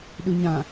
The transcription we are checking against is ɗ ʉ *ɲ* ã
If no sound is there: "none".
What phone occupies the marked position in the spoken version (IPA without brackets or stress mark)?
ɲ